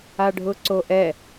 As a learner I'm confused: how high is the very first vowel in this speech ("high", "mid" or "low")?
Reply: low